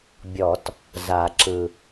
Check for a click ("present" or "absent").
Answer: present